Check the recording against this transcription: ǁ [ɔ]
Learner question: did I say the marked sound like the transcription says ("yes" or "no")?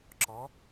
yes